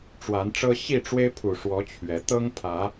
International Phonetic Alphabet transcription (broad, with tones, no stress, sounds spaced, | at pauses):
ʈ͡ʂ w a˨˦ n ʈ͡ʂ ɤ˦ ɕ i˥˨ ʈ͡ʂ w e˦ ɪ̯ pʰ u˨˩ ʂ w ɔ˨˦ t͡ɕʰ ɥ ɛ˨˦ t̪ ɤ˦ ŋ pʰ ä˨˦